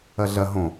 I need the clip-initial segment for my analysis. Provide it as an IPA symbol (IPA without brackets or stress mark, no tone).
ɐ